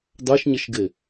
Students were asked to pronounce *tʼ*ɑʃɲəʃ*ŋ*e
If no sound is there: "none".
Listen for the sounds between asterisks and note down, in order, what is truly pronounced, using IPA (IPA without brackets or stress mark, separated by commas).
d, ɡ